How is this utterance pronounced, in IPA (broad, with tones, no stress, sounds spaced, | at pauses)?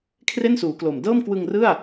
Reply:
kʰ r e˥˩ n s uː˩˦ k l o˨˩ m d ɤː˥˩ m k w ɯ˧ ŋ r ɯ˥˩ a̯